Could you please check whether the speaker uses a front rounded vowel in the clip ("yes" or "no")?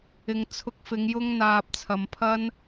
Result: no